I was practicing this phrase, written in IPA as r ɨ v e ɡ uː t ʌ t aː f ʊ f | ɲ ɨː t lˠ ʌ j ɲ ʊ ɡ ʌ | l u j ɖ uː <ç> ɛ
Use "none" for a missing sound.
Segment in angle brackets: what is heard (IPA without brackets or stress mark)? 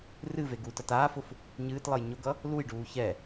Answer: ç